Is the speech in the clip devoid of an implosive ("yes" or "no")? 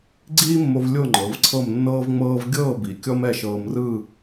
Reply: yes